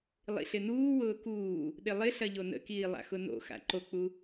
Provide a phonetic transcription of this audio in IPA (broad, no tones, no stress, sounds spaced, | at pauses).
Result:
lˠ ḭ ɬ ɪ n uː w ʊː k uː | ɗ ɪ lˠ ɪ ɬ ɐ ʎ o n ə̰ k iː lˠ a̰ x ʊ n o̰ x a̰ ǃ o k͡p u